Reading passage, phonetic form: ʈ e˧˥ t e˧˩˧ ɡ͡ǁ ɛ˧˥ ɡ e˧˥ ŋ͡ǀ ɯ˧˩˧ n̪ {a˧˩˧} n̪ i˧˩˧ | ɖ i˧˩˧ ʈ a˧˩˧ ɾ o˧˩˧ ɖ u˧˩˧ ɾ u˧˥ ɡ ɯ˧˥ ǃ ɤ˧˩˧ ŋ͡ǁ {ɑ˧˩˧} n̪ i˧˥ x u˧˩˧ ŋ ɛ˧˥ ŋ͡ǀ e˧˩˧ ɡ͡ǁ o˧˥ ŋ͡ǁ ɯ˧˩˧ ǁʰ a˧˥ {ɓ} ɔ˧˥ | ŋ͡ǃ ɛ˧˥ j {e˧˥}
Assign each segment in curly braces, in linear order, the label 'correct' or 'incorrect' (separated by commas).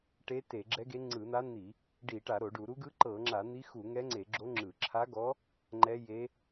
incorrect, incorrect, incorrect, correct